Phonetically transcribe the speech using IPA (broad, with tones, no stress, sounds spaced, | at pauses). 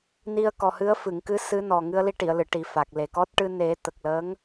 n i˧ ə̯ k ɔ˨˩ h ɨ˧˥ ə̯ f ɨ˨˩˨ ŋ k ɨ˧˥ s ɨ˧˥ n ɔ˨˩ ŋ ɨ˧ ə̯ l i˧ ʈ i˨˩˨ ə̯ l ɨ˨˩˨ ʈ i˨˩ f a˨˩ k̚ l e˨˩ k ɔ˦˥ t̚ ʈ ɨ˧ n e˨˩˦ t̪ ə˨˩ k̚ l əː˧˥ ŋ